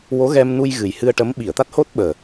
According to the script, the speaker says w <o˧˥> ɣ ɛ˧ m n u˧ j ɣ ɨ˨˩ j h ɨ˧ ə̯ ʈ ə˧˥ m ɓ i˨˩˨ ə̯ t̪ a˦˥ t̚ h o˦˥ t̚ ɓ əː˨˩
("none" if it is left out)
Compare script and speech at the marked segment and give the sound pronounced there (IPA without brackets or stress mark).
o˧˥